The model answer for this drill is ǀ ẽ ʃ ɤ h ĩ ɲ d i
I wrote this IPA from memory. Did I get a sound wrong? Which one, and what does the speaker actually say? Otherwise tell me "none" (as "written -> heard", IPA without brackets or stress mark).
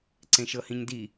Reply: none